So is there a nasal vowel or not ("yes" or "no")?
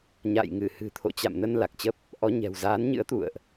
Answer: no